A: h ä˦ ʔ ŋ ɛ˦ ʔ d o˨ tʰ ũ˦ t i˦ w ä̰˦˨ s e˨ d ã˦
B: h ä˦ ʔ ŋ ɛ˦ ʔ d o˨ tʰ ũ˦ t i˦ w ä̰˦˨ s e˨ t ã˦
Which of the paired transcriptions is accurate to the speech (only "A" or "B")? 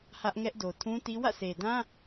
A